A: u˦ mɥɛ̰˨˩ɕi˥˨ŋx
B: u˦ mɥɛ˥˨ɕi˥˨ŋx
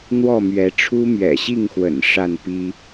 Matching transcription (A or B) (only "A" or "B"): A